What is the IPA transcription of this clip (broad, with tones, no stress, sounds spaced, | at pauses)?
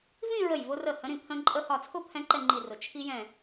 v ĩ˥˧ ɹ ə˧˩ j v ʊ˧ r ə˧˩ h ə̃˧˥ ɾ ĩ˧ pʰ ə̃˧ ǃʼ ə˥˧ h ɒ˧˩ t͡sʰ ʊ˥˧ pʰ ɛ̃˧ ǃ ɛ˥˧ ŋ͡ǃ i˧˩ r ʊ˩ t͡ʃʰ i˧ j ɛ̃˧˩